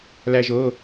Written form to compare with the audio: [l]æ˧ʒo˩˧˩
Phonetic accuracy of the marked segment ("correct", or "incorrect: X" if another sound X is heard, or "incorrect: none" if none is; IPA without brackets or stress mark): correct